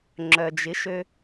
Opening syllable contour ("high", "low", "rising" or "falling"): low